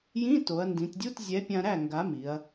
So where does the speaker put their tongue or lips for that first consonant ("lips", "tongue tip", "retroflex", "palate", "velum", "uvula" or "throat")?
palate